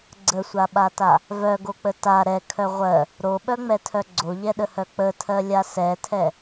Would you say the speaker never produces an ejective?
yes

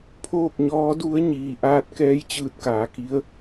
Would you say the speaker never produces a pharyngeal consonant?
yes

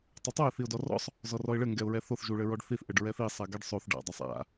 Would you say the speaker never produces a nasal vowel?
yes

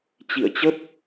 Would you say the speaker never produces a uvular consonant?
yes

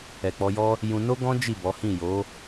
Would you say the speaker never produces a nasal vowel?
no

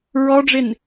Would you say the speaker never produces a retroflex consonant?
no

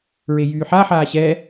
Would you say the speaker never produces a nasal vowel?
yes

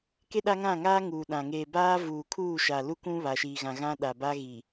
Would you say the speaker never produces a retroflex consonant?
yes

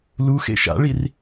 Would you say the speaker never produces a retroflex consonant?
no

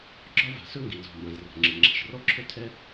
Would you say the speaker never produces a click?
no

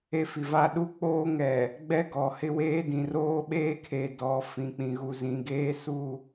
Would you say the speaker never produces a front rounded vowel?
yes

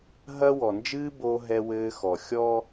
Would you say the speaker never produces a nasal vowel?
yes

